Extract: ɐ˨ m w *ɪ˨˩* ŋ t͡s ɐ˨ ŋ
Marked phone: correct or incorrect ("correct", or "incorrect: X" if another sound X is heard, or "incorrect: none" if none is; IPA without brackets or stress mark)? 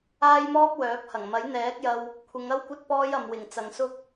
correct